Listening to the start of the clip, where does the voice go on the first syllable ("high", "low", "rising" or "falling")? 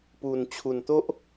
low